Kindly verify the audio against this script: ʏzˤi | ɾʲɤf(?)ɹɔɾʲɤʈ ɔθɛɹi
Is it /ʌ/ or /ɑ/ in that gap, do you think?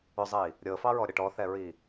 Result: ɑ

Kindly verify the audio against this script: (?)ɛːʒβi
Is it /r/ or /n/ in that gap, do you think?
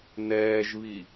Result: n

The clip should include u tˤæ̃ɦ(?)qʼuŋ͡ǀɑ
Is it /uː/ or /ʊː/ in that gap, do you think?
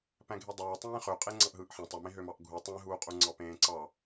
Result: uː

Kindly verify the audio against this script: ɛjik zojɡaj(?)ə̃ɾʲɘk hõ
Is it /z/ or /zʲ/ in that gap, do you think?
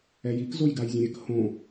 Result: zʲ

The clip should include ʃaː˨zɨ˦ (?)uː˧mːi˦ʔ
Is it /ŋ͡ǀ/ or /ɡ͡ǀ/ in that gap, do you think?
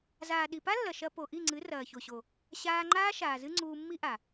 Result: ŋ͡ǀ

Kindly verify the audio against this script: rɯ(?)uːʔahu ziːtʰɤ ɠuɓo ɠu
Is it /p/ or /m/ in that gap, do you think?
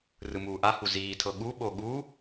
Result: m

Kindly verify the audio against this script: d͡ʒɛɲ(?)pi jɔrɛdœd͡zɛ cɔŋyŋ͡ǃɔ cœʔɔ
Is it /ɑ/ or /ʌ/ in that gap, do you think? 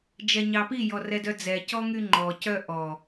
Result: ɑ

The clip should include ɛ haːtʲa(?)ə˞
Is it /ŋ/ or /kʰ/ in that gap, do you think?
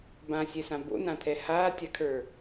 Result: kʰ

